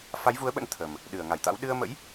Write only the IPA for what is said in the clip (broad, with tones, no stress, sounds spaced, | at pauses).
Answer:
f a˨˦ j v u˨˦ ə̯ ɓ ə̰˧˥ n t̪ʰ ə˨˩ m | ɗ ɨ˧˩ ə̯ ŋ a˧˩ j t̪ a̰˧˥ w ɗ ɨ˧ ə̯ m ə̰˧˥ j